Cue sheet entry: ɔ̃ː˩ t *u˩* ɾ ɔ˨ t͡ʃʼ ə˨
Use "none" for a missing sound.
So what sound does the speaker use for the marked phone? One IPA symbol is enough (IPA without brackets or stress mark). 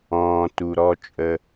u˩